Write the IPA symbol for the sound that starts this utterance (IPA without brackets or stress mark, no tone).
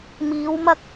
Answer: m